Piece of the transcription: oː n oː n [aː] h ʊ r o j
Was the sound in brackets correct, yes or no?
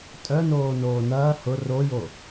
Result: no